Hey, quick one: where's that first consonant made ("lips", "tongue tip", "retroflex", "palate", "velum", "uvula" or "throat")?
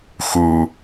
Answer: velum